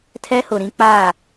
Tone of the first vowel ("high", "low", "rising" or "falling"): high